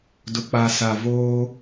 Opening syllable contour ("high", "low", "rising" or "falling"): low